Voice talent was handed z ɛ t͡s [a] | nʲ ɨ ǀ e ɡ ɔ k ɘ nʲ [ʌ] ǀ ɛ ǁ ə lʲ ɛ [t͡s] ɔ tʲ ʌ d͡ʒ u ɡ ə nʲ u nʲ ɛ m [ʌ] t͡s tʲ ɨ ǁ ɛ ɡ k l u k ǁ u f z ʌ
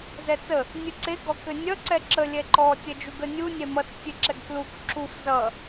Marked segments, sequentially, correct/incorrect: incorrect: ə, correct, incorrect: ǃ, correct

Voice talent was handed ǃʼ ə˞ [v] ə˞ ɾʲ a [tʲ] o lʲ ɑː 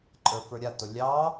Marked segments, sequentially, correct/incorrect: incorrect: f, incorrect: t

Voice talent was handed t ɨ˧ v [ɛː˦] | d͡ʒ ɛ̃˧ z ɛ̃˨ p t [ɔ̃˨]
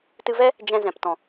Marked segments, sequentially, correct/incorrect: incorrect: ɛ˦, correct

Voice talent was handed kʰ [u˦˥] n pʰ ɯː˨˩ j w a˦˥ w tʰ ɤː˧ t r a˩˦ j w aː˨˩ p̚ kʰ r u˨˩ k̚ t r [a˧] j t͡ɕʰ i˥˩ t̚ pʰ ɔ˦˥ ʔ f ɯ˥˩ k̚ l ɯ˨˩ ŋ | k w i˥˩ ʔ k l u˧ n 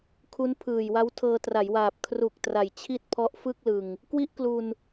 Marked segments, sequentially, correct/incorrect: correct, incorrect: a˨˩

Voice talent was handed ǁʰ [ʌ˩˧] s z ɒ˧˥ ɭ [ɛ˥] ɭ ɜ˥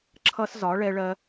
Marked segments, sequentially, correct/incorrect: incorrect: ʌ˥, correct

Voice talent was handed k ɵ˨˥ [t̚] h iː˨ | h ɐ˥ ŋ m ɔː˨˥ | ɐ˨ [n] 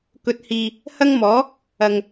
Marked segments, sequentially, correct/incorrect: correct, incorrect: ŋ

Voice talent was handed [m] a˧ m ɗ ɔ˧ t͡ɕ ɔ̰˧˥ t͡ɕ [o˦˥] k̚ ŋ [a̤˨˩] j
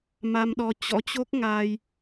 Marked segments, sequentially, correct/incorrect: correct, correct, incorrect: a˧

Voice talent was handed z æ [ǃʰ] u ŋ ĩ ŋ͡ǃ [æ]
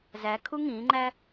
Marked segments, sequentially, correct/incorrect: incorrect: kʰ, correct

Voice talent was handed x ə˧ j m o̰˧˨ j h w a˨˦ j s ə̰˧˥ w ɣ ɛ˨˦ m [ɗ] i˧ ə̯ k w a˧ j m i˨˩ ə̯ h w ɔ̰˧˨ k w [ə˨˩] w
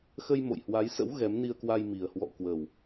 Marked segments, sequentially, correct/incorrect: incorrect: n, correct

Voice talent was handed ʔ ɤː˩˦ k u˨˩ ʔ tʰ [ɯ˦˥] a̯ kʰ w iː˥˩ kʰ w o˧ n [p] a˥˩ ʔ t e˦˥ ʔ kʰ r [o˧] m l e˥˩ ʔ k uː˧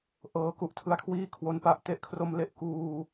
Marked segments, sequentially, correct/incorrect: incorrect: ɯ˧, correct, correct

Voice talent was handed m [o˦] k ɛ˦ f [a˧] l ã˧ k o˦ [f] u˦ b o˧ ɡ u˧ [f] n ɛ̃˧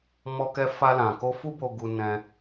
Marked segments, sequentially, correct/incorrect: incorrect: ɔ˦, incorrect: a˦, correct, incorrect: none

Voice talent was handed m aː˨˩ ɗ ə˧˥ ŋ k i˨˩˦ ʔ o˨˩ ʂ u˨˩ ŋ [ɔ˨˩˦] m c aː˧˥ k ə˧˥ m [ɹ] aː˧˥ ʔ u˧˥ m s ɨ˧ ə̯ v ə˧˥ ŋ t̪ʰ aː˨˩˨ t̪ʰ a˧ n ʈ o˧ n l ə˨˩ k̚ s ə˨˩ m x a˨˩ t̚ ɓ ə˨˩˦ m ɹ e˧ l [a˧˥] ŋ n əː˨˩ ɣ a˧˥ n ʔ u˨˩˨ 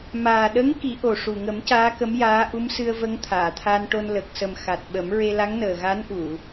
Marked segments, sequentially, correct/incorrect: incorrect: ə˨˩˦, incorrect: j, correct

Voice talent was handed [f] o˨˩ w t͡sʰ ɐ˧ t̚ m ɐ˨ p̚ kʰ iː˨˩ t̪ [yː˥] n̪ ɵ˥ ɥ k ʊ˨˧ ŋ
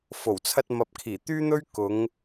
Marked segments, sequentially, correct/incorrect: correct, correct

